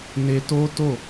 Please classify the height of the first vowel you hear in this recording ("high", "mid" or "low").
mid